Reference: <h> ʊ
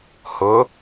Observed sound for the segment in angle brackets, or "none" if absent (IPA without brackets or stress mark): h